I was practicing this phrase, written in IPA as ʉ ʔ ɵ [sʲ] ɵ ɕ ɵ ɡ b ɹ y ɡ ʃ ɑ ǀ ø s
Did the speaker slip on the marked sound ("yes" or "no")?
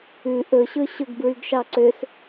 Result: yes